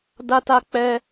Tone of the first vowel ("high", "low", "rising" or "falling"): high